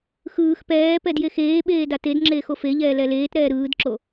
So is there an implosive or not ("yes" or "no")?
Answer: yes